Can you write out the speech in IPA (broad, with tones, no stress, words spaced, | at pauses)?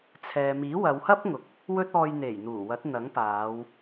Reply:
t͡sʰɛː˨miː˨˥wɐ˨˧whɐ˥p̚ ŋʊ˨k̚ | wɵ˥t̚ɔː˧j n̪e˨˩jn̪uː˨˩wɐ˨˥t̚n̪ɐ˨˥ŋ paː˨˧w